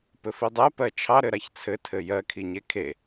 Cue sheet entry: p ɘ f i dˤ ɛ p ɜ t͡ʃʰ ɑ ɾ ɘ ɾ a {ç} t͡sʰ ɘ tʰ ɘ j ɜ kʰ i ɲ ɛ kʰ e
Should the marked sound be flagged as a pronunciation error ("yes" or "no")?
no